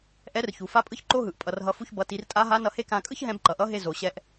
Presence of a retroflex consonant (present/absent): absent